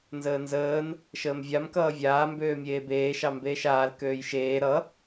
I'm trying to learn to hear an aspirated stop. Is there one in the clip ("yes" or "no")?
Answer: no